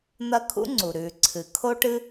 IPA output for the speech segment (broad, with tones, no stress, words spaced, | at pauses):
n̪ɐ˥ kʰṵ˥ ŋ͡ǀu˩ ɾʉː˩ ǀʰɨ˩ kʰo˥ʈɨ˥